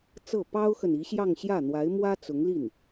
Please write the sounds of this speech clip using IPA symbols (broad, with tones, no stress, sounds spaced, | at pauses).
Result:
t͡s ɤ˥˩ p ɑ˥ ʊ̯ x ə˨ n i˧˥ ɕ j ɑ˥˧ ŋ ɕ j ä˥˩ n̪ w a˧˥ ɪ̯ m w ä˥ t͡s ʊ˧˥ ŋ l i˥˩ n